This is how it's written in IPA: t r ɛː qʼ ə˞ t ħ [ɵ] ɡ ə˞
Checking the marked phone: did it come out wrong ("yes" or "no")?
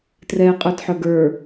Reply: yes